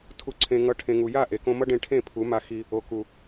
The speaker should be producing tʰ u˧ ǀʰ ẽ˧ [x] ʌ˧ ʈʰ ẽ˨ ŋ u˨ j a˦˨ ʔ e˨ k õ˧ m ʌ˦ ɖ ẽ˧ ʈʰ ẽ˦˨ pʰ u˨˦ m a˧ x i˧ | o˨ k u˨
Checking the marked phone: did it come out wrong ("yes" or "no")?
yes